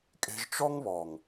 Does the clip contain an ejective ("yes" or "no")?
yes